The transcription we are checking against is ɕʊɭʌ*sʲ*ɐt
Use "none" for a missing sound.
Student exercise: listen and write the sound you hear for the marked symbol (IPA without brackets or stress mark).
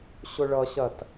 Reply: ɕ